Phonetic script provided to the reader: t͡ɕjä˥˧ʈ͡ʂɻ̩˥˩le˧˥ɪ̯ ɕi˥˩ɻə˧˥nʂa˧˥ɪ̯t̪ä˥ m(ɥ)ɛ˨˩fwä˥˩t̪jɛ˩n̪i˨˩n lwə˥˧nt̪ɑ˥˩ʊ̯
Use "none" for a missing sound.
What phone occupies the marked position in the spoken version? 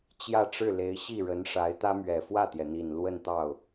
ɥ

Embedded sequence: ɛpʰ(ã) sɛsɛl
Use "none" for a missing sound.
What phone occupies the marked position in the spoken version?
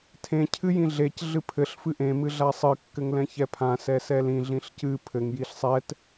ã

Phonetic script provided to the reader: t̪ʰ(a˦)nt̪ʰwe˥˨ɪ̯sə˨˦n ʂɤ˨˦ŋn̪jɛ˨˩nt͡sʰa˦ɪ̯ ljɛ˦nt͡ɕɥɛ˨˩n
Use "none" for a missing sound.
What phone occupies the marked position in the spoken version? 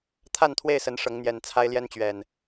a˥˨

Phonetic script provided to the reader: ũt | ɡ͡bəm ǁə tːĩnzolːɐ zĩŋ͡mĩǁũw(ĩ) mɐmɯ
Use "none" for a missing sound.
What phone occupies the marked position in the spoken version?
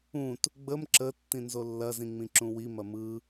i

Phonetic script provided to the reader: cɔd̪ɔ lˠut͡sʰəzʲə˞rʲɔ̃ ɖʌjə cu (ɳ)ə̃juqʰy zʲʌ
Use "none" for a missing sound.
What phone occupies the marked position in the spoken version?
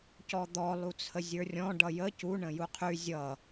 ɳ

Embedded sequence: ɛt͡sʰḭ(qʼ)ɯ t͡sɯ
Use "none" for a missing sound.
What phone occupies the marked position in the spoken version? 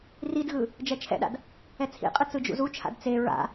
qʼ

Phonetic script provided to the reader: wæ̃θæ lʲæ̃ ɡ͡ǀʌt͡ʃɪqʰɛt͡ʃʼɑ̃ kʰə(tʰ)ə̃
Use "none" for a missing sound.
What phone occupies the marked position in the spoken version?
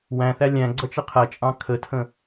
tʰ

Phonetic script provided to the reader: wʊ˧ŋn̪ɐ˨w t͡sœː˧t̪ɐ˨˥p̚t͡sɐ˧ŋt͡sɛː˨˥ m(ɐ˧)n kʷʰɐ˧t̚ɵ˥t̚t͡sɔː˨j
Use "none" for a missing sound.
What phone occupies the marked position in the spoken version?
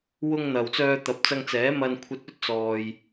ɐ˧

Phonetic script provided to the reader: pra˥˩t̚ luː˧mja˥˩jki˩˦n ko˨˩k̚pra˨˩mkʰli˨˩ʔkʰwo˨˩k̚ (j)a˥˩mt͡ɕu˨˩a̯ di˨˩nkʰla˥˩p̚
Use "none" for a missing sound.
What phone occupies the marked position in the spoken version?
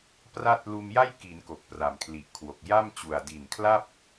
j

